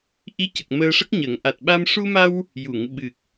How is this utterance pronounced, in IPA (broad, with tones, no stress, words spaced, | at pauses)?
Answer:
ʔi˧˥cə˨˩k̚ məː˧ʂə˦˥k̚ɲəː˨˩˦ŋ ʔa˨˩t̚ɓa˧m ʂu˧ma˧w | ju˨˩˨ŋ ɓɨ˨˩k̚